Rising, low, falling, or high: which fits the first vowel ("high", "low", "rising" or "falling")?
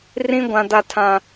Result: high